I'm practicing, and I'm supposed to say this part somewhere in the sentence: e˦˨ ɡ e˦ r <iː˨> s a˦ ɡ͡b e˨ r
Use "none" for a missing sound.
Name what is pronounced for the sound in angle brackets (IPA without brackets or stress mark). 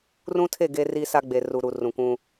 iː˦